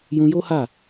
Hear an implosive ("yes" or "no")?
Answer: no